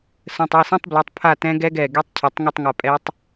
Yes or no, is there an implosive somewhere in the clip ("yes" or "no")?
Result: no